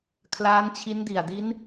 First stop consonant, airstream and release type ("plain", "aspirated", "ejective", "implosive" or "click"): aspirated